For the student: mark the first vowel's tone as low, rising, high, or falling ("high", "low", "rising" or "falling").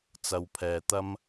low